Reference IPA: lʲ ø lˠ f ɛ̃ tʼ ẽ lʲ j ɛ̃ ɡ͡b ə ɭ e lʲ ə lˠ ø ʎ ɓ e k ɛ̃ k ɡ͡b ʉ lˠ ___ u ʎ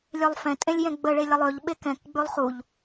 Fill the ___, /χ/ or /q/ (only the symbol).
χ